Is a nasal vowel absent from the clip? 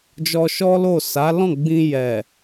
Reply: no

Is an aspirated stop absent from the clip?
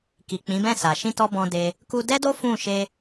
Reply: yes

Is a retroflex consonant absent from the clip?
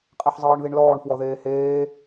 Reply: no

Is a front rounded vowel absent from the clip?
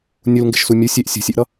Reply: yes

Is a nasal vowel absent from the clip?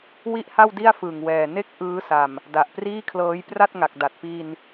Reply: yes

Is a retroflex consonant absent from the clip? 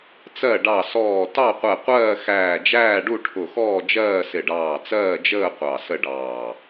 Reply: no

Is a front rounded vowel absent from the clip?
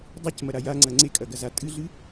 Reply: yes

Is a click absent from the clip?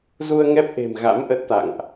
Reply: yes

